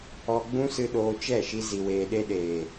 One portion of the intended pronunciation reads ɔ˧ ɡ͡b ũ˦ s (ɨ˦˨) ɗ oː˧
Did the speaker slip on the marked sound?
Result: yes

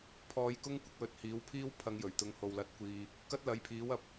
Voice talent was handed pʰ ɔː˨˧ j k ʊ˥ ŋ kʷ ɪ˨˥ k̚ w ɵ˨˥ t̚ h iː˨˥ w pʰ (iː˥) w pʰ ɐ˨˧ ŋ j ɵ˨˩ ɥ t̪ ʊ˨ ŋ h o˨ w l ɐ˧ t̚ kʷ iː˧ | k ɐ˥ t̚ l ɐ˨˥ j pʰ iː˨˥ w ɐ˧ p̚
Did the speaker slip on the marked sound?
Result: no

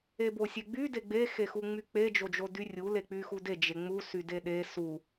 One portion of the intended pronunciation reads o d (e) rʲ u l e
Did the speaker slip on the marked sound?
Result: yes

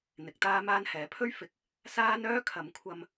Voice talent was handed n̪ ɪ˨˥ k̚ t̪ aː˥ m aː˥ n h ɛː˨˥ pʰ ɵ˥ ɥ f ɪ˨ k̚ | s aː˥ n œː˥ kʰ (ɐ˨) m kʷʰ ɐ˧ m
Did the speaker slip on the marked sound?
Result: yes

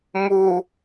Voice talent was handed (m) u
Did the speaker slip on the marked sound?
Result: no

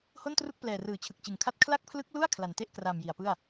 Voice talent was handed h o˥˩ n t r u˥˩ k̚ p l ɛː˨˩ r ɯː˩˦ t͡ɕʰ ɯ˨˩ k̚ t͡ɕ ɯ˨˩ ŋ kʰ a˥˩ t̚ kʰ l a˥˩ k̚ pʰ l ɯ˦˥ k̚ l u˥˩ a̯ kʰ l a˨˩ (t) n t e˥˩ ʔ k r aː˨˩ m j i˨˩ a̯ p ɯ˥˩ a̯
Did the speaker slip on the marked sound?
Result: yes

